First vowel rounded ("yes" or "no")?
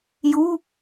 yes